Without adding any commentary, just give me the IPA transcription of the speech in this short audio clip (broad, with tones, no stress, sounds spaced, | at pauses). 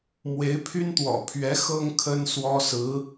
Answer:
m w e˧˥ ɪ̯ pʰ y˥ n t̪ w ɔ̰˨˩ pʰ ɥ ɛ˧˥ x ɤ˥ ŋ kʰ ə˥ n s w ɔ˥ s ɹ̩˧˥